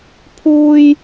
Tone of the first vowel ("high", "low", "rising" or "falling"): high